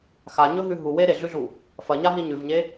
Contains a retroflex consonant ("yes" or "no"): no